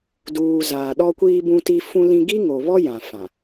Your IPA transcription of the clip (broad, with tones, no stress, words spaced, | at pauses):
duː˨ zaː˨ɗɔ˦kʷiː˦ bũ˦ti˦ fũ˦lĩ˦ ɡi˦ŋo˨βɔ˦ jã˨fã˨